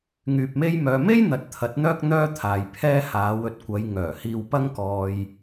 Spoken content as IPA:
ŋ yː˨ p̚ m e˥ j m œː˧ m e˥ j n̪ ɐ˨˥ t̚ t̪ʰ ɐ˨˥ t̚ n̪ œː˥ k̚ n̪ œː˥ t̪ʰ aː˨ j pʰ ɛː˥ h aː˨˧ w ɵ˨ t̚ kʷ ɐ˨˧ j ŋ œː˨˩ h iː˧ w p ɐ˥ ŋ k ɔː˧ j

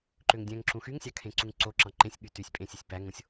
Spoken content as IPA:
ǃ ø ŋ dʲ æ̃ ŋ ǁ ũ x y ŋ sʲ ɑ kʰ ẽ ǀ u ŋ ǀ o ǁ ɑ̃ ǃ ẽ sʲ ɠ y t y sʲ pʼ ẽ sʲ e sʲ p æ ŋ õ sʲ

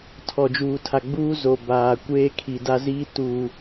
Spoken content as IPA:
tʰ ɔ˨ d͡ʒ uː˨ tʰ a˨ ɡ͡b uː˦ z o˨ b aː˨ kʷ eː˦ kʰ i˨ d a˦ z iː˦ t uː˨

